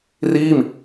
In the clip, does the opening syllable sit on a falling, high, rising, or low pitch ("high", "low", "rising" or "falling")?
falling